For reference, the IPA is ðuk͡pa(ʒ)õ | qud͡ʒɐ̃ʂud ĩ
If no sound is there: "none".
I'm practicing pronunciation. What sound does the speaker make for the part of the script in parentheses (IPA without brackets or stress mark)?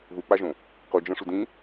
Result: ʒ